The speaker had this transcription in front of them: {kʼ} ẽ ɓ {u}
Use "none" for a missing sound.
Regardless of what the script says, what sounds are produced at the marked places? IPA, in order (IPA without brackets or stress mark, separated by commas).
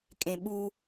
kʼ, u